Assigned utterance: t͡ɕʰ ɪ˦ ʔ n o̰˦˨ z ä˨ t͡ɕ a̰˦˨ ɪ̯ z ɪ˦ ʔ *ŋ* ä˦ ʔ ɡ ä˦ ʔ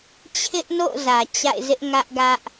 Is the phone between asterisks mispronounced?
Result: no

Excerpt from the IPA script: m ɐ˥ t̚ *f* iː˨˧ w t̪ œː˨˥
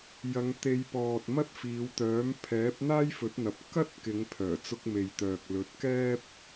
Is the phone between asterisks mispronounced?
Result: no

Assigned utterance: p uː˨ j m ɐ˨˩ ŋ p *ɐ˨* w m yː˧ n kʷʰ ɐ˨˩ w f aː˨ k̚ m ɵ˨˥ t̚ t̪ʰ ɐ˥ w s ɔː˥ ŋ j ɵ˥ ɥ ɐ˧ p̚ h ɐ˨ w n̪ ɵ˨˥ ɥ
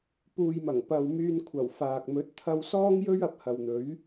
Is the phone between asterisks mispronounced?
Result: no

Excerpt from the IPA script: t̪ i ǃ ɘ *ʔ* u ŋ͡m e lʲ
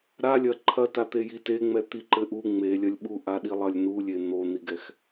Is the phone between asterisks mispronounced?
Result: no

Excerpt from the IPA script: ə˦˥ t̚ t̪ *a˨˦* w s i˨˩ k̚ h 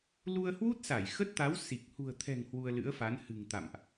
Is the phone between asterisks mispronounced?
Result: no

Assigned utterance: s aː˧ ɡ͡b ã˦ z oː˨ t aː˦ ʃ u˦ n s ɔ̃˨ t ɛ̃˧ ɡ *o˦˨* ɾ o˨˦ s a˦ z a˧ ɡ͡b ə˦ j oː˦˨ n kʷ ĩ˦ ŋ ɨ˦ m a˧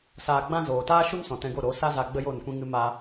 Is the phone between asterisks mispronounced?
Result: no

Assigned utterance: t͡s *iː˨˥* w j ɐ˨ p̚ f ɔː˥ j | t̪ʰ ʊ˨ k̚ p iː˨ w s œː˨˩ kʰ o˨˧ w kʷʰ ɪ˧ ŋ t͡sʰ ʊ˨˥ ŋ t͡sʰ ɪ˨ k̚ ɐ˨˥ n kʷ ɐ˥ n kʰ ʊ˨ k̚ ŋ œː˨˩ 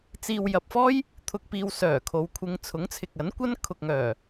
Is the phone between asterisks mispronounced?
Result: yes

